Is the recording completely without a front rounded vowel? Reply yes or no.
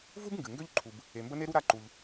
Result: no